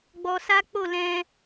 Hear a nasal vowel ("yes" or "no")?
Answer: yes